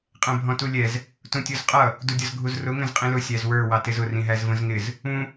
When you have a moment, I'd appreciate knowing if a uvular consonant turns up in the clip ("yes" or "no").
yes